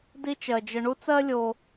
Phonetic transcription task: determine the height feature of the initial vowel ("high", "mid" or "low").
high